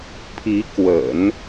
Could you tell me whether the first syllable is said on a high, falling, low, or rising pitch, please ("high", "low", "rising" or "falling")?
rising